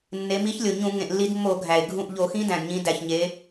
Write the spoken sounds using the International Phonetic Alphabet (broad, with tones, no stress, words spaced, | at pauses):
nːe˩˧mi˨˥çlʲo˩ɲũ˧˩˧ ŋẽ˩ʔlːi˧˩˧dmːo˧˩˧ ɡʱæ˩e̯ ɡʱũ˧˩ʔ ʎo˧˩˧xĩ˦˥dæ̃˩d ɲĩ˩˧ dæ˩çɲe˩˧